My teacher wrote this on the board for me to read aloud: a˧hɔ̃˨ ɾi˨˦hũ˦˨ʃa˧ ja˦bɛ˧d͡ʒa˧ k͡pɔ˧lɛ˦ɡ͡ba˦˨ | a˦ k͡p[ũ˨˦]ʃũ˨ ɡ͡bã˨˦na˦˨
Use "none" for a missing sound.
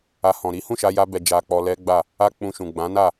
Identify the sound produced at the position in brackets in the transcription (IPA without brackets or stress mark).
ũ˧